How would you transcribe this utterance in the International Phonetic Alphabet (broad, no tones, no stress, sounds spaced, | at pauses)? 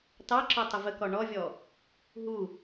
t ɑ ǁ ɔ tˤ ə v ə k ɔ ɳ ɔ vʲ ɔ | ɦ u